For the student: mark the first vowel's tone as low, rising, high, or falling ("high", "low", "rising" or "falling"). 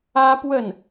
high